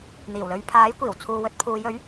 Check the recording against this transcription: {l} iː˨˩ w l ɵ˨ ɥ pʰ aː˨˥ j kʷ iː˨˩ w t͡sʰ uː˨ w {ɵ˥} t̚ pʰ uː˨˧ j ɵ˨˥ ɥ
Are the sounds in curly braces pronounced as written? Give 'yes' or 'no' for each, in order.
no, no

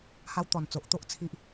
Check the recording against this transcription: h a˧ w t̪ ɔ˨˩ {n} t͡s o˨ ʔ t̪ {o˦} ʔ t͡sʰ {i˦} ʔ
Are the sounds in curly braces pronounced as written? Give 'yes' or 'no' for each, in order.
yes, yes, yes

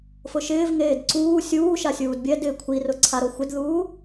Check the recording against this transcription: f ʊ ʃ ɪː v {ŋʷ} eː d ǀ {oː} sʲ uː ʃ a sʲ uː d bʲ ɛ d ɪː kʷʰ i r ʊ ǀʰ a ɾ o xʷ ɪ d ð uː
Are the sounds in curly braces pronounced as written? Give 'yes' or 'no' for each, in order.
no, no

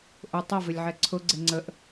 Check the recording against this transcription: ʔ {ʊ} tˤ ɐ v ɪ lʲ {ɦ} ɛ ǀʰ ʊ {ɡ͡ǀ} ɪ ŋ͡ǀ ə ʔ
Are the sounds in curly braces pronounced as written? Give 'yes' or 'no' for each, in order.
yes, no, yes

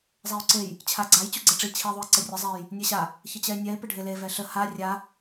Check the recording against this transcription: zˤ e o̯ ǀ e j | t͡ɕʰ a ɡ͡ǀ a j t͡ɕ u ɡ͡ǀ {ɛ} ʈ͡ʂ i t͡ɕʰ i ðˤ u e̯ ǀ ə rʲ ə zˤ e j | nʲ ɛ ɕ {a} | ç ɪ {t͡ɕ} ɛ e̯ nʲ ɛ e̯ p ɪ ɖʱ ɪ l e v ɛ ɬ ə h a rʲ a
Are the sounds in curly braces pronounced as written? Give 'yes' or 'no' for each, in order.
yes, yes, yes

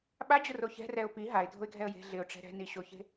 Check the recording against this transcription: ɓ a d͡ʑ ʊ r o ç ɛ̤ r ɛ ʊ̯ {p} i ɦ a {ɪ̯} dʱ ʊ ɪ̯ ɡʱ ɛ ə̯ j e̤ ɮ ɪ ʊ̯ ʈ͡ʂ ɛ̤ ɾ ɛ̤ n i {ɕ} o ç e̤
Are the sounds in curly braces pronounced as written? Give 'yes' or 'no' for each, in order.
yes, yes, yes

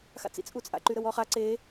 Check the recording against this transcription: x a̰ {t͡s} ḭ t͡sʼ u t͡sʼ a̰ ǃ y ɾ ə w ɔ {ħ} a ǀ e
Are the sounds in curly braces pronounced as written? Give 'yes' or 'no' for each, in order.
yes, no

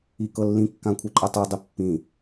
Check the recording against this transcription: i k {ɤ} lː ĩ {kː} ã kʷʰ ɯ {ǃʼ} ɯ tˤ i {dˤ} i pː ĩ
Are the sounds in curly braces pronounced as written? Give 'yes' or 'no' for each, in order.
yes, yes, yes, yes

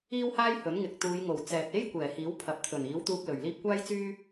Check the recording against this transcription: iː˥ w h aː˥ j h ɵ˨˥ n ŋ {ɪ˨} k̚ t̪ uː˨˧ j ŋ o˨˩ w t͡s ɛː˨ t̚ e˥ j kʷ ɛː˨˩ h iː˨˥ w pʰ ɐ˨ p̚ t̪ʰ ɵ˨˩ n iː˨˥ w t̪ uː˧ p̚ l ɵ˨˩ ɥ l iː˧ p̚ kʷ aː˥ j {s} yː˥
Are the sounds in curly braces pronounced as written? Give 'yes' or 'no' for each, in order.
yes, no

